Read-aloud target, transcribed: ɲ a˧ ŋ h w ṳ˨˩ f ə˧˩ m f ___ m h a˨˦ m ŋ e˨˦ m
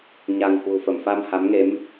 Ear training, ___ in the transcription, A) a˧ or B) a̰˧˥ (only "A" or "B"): A